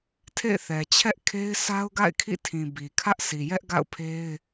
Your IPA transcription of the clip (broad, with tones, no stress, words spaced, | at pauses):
tʰḛ˦˨ɪ̯θɛ˨ t͡ɕʰɛ˦ʔkʰe˦ɪ̯ sʰa˦ʊ̯ɡa̰˦˨ɪ̯ kʰḭ˦˨tʰĩ˨bi˨ kʰä˦ʔsʰi˨jɛ˦ʔɡa̰˦˨ʊ̯ pʰe˦ɪ̯